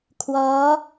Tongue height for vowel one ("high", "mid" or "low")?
mid